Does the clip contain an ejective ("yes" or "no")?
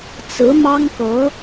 no